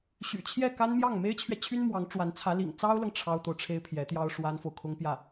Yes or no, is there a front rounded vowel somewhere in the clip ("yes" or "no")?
yes